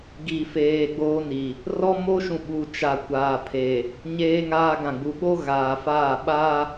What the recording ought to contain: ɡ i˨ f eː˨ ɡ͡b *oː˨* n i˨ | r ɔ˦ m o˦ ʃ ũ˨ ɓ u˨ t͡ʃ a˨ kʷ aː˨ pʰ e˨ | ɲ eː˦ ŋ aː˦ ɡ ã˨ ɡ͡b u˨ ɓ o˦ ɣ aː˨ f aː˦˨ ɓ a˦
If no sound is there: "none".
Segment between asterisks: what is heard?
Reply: oː˦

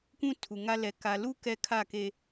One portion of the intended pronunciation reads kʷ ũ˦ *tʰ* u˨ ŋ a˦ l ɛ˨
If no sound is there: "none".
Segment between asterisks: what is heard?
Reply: tʰ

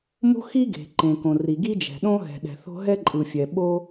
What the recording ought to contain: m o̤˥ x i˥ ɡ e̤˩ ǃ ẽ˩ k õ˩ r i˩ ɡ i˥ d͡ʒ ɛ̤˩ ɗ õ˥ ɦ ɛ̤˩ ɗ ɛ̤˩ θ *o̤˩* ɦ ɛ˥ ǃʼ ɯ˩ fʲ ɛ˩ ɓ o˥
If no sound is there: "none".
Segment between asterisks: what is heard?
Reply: o̤˥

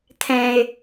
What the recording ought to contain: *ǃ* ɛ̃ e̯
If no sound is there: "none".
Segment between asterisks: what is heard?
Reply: t̪ʰ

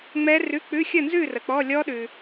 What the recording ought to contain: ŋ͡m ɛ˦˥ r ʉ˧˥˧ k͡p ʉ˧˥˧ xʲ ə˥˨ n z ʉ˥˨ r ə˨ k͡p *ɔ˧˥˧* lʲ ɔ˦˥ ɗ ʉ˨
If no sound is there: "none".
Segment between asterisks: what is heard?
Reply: ɔ˧˥˧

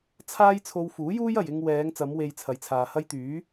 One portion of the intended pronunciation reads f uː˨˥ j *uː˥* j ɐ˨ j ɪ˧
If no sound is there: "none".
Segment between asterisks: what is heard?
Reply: uː˥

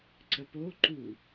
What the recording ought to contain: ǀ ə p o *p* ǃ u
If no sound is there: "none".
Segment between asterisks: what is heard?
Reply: none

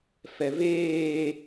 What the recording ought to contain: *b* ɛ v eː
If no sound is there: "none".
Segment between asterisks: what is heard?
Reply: f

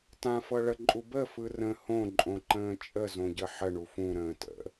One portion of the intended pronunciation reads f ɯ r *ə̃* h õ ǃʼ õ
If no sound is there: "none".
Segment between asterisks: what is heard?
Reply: ə̃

